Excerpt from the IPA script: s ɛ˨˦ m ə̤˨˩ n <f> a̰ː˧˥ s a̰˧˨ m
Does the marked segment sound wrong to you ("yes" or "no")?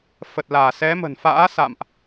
no